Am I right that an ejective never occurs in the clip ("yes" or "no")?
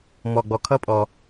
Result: no